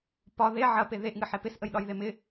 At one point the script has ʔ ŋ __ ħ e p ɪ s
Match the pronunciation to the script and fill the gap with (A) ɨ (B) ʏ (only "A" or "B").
A